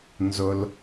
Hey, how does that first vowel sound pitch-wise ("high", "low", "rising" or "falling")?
low